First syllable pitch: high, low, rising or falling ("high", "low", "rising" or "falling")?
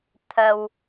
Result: low